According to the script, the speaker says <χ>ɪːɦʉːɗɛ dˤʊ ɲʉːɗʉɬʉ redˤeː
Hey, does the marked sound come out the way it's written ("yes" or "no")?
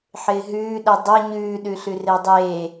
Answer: no